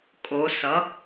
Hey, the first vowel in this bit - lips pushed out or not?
yes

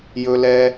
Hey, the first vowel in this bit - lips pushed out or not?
yes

